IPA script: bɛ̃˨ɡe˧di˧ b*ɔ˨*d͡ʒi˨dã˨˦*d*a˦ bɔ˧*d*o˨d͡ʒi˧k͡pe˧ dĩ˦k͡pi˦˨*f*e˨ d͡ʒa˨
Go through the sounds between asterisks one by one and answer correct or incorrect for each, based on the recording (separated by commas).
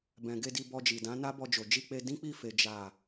incorrect, incorrect, incorrect, correct